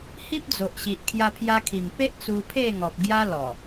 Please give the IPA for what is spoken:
h i˦ p̚ d͡z o˨ ʔ ɕ i˨ ʔ kʰ j a˧ pʰ j a˧ kʰ i˨˩ m p e˦ ʔ t͡s u˧ pʰ e˥˧ ŋ ɔ˨ p̚ ɡ j a˦ l ɔ˨˩

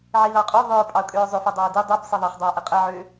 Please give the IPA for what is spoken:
ʕ i ð ɑ qʼ ø ðˤ ø ɹ pʼ ɑ ʊ̯ kʼ ø ɹ zˤ ø f ɐ dˤ ɑ ɪ̯ d i dˤ e b sˤ e ðˤ ɐ χ dˤ ø ə̯ ʔ ɐ qʼ ɐ ʕ ø

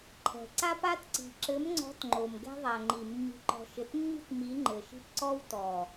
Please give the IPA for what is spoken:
ǃʰ ɛ̤˨ ǀ a˦ p a˦ t ǀ i̤˨ ǁ ɘ˨˦ m ŋ͡ǀ ɔ̤˨˦ t ŋ͡ǃ o˨ m ɡ ɛ̤˦ ðˤ a˨ ŋ͡ǃ i˨ mː i̤˨ ǃ ɔ̤˨ ʃ ɘ˨ t mː i̤˦ t m i˨˦ ŋ͡ǃ ɘ˨ ʃ i̤˦ p ǀ ɔ˦ w t ɔ˨

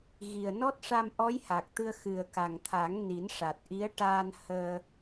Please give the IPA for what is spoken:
ɣ i˨˩ ə̯ n ɔ˦˥ t̚ ʂ a˧ m ʔ ɔ˧˥ j h a˨˩ k̚ t̪ ɨ˧ ə̯ x ɨ˨˩ ə̯ k a˨˩ ŋ t̪ʰ a˨˩˦ ŋ n i˨˩˦ n ʂ a˨˩ t̚ ʔ i˧˥ ə̯ ʈ aː˧ n h əː˧

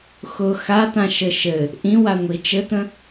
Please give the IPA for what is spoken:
x ʊ x a t̪ ã ʃ ɘ ʃ ɘ | ʔ ĩ w a ŋʷ i t͡ʃ ɘ t̪ ə̃

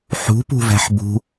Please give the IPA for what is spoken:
ħ ṳ p ṳ v æ̤ ħ b ṳ

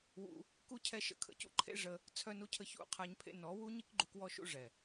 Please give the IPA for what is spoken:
w ṵ˧ | k u˦ cʰ ɛ˦ ʃ ə̰˨˦ kʰ ə̰˧ c ṵ˦ ǃʰ ḛ˦ ʐ ə˦ | t͡sʰ œ˧ n u˧ cʰ ə˧ ç ṵ˧ qʰ a˧ ɲ pʰ ḛ˧ n ɔ˨˦ w u˦ ɲ i˦ k ɡ͡ǃ u˧ k w ɔ˦ ʃ ṵ˦ ʐ ɛ˨

